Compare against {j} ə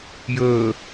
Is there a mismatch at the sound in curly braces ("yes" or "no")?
no